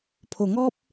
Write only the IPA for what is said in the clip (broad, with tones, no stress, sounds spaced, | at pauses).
pʰ o˨˩ ŋ ɔ˦ p̚